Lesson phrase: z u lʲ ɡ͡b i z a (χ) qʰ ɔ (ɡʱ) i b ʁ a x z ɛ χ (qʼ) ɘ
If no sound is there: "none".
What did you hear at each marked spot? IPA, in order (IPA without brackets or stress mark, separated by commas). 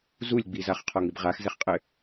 χ, ŋ, qʼ